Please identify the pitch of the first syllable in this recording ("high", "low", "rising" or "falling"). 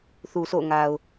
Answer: low